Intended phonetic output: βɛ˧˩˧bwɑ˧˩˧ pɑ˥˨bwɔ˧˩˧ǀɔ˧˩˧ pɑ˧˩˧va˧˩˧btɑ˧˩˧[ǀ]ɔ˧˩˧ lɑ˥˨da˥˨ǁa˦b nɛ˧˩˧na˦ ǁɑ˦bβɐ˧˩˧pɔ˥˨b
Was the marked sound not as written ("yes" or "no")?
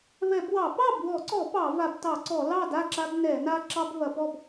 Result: no